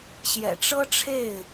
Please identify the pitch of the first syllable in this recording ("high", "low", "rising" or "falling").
low